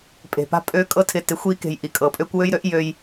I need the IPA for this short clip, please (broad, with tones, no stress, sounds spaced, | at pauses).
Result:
pʼ e̤˨ p a̤˦ pʼ ø˧ kʼ ɤ˧ tʰ ɪ˨ t ɪ˨ xʷ i˧ k e̤˨ j ʔ i˨ kʼ ɤ˨ pʼ ø˦ kʷ w ø˦ j ɾ ø˦ ʔ j ø˧ j